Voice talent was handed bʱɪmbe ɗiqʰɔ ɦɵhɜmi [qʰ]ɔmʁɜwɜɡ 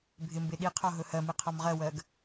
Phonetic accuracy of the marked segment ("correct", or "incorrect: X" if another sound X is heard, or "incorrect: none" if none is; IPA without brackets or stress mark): correct